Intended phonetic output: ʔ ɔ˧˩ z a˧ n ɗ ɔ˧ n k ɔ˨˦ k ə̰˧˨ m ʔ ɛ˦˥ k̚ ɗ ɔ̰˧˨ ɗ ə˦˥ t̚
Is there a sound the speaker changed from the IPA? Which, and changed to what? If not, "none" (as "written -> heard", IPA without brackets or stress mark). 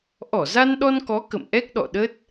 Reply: none